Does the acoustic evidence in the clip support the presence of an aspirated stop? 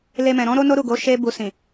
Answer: no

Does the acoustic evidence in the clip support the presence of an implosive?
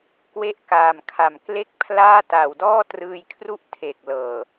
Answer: no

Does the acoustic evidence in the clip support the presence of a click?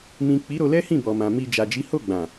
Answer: no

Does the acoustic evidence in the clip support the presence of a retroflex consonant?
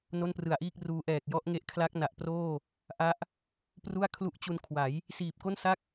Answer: no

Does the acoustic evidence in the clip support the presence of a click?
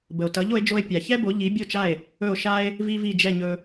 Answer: no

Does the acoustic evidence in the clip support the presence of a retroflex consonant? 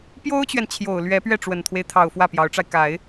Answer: yes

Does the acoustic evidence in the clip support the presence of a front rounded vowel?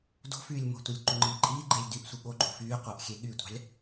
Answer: yes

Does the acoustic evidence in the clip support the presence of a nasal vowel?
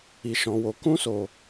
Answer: yes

